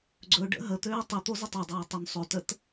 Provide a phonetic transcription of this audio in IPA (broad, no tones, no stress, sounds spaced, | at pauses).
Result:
ɡ͡ǀ ɵ ɖ ə̰ ɦ ə t̪ øː tˤ ɪ t̪ o z ɪ tˤ ɵ dˤ ɵː tˤ ɵ n sˤ ø t ə t